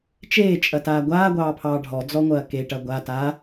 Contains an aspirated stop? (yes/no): yes